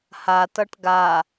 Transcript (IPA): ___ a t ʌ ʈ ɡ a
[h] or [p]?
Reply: h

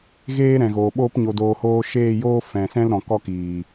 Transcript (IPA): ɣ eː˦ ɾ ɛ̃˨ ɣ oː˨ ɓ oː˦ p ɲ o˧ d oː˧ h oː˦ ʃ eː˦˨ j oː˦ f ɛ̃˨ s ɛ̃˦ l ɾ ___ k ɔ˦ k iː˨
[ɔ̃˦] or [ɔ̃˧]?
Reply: ɔ̃˧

